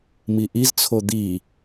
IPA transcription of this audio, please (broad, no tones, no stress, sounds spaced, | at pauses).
m i ʔ i z t͡sʰ o d̪ i